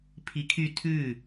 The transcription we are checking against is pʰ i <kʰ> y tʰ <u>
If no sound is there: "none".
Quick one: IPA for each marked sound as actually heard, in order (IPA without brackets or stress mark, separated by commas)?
kʰ, ʉ